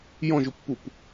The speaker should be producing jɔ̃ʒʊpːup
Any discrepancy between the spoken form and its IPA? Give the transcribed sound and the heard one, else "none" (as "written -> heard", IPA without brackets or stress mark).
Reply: none